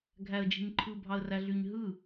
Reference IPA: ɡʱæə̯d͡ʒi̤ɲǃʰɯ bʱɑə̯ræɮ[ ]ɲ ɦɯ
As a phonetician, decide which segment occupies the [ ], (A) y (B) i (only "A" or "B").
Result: A